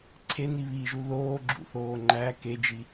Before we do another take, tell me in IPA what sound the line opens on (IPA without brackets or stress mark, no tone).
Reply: ǀʰ